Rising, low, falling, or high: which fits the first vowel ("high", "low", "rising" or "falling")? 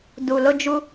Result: low